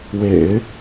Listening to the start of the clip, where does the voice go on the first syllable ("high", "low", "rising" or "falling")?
low